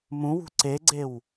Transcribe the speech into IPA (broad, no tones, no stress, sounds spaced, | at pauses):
m ũ w ṳ ǀ e ɡ͡ǀ e w